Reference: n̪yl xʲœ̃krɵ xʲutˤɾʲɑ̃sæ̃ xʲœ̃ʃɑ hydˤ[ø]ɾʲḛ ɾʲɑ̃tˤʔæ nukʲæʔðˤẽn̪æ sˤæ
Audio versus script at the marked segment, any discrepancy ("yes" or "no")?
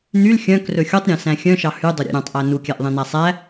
yes